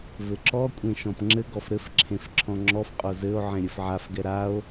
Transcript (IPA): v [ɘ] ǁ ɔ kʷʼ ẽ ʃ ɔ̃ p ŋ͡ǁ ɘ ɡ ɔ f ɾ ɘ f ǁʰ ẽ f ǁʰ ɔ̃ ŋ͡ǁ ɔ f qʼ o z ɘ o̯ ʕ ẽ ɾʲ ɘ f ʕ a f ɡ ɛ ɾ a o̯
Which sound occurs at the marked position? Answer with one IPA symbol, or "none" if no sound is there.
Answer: ɘ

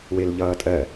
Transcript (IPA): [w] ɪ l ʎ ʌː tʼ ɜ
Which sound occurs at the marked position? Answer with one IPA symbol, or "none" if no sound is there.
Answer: w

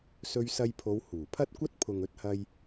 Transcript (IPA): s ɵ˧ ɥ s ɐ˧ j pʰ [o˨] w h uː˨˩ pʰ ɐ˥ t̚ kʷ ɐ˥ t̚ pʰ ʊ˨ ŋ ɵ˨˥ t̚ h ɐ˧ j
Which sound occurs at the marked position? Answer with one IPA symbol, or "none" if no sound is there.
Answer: o˨˧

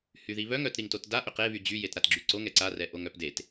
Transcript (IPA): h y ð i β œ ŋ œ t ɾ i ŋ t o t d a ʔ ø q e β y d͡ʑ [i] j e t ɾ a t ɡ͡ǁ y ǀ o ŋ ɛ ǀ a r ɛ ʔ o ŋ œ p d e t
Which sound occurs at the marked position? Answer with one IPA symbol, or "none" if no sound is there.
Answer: y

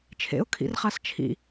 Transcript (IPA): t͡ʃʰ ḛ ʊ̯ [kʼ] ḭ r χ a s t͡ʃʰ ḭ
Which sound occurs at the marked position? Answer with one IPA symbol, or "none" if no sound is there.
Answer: kʰ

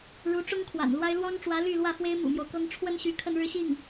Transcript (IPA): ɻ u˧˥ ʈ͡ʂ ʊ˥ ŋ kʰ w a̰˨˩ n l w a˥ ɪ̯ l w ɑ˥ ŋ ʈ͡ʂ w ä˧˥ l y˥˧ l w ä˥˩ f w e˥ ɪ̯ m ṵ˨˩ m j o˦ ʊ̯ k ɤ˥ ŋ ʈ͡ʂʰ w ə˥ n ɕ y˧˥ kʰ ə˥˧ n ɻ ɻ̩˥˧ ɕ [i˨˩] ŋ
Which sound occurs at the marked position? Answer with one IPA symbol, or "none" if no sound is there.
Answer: i˥˩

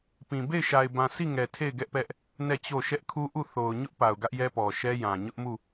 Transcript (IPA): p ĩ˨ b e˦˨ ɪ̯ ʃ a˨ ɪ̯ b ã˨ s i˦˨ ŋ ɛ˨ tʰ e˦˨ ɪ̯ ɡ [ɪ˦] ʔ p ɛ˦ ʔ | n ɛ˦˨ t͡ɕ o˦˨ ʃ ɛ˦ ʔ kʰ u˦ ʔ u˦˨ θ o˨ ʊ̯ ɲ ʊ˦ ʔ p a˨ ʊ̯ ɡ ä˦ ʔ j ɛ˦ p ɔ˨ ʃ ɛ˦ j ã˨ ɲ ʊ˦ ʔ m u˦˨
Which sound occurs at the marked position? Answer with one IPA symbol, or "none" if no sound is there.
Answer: ɛ˦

